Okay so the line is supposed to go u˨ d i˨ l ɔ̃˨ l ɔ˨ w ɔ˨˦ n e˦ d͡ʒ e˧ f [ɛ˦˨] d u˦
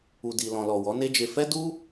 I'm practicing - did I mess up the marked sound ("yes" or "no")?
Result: yes